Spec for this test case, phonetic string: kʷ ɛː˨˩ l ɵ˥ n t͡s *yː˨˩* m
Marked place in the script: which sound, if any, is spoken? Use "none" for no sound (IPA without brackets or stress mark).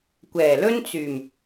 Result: yː˨˩